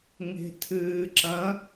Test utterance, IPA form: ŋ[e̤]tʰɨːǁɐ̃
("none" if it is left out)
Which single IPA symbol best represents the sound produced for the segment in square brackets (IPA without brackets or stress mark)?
e̤